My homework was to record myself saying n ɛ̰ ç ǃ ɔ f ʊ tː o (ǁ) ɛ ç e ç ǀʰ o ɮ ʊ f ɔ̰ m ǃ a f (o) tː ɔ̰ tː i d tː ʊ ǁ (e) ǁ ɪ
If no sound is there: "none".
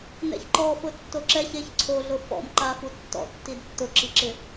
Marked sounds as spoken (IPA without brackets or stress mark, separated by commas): ǁ, u, i